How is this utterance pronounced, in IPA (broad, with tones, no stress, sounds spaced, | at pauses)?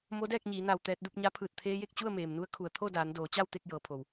m o˧˥ d ɛː˥˨ k̚ ɲ iː˩˧ n a˧˩ w t̪ ɛː˧ t̚ d u˥˨ p̚ ɲ a˧˥ pʰ ɯː˧˩ t̚ t̪ʰ eː˧ j e˥˨ k̚ t͡ɕ u˥˨ ə̯ m eː˩ m n u˧˥ ə̯ kʰ u˩ ə̯ t̪ʰ o˥˨ d aː˩˧ n d oː˩˧ t͡ɕ a˥˨ w t̪ e˥˨ k̚ j ɤː˩˧ pʰ o˩ w